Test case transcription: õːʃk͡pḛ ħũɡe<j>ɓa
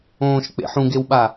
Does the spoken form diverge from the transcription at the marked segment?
yes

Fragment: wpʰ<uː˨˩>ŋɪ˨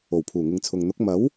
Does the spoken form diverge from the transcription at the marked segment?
no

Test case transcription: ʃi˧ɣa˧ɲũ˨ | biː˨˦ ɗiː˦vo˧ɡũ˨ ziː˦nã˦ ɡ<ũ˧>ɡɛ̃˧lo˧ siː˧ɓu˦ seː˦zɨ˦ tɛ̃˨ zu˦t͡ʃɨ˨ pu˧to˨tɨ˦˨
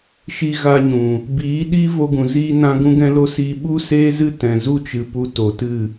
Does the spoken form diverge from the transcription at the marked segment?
no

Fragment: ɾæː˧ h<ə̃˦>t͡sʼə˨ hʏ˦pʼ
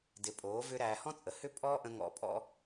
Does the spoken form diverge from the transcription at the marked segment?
yes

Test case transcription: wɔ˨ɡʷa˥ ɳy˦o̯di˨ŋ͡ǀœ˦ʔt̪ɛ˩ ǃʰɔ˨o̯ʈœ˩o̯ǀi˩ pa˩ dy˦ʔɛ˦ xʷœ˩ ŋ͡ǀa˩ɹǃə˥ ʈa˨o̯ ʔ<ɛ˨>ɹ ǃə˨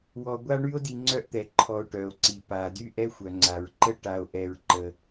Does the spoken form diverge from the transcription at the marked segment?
no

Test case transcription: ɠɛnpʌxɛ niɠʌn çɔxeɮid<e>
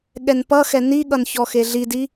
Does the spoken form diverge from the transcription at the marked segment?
yes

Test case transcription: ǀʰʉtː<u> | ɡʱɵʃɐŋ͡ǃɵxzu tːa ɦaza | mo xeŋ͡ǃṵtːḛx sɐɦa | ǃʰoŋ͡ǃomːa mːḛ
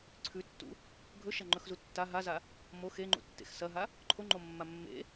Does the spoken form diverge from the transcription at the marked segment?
yes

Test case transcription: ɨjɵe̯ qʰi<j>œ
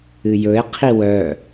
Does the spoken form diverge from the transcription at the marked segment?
yes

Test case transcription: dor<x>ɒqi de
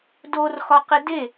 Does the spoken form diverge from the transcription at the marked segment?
no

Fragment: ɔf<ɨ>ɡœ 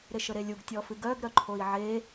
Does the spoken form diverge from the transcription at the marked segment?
no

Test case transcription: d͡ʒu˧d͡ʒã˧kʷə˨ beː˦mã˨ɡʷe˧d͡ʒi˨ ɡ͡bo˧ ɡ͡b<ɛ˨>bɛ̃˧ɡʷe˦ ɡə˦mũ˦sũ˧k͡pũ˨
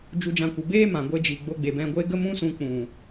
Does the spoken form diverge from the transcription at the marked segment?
yes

